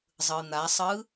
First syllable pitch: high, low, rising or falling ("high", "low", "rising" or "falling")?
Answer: low